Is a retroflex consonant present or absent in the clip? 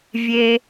absent